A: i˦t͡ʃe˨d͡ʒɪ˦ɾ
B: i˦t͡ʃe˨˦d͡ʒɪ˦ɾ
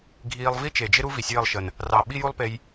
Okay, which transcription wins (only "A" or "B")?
A